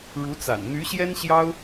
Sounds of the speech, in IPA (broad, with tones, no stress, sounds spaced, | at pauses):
ɻ u˧˥ t͡s a̰˨˩ n n̪ y˧˥ ɕ j ɛ˥ n ɕ j ɑ˥ ʊ̯